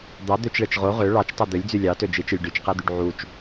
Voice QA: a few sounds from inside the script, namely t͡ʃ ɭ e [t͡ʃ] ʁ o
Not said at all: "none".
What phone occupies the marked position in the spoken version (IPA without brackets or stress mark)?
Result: t͡ʃ